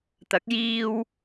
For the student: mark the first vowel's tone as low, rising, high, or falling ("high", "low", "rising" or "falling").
rising